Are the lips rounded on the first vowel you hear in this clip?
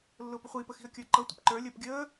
yes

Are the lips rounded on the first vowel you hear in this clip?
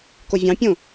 yes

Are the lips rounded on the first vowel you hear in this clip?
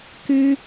no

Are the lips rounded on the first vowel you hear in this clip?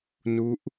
yes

